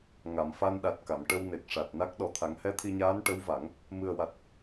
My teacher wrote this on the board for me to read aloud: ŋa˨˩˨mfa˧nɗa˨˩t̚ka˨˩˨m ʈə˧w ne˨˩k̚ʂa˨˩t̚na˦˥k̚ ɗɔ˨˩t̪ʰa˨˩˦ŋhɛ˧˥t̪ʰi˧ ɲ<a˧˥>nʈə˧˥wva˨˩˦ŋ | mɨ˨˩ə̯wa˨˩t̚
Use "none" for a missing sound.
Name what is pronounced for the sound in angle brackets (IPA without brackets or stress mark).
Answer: aː˧˥